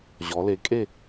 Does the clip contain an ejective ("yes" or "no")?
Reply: yes